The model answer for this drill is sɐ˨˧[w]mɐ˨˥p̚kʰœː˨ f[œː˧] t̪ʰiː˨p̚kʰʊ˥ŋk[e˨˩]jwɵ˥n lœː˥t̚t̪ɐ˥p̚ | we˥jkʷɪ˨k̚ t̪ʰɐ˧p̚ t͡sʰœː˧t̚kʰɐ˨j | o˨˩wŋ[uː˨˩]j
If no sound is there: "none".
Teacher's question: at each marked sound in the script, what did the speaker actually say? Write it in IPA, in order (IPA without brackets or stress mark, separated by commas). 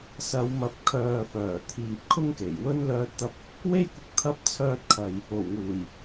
w, œː˨˩, e˨˩, uː˨˩